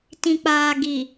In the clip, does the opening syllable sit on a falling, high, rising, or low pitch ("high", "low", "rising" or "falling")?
low